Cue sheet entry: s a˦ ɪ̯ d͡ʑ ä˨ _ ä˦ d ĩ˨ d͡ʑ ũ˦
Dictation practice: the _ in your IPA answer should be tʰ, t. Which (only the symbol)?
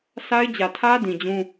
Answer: tʰ